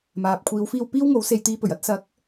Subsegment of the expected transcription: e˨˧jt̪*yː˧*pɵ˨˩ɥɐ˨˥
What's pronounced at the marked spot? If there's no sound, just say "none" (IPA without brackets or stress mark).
iː˧